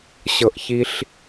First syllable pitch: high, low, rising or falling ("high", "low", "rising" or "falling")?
high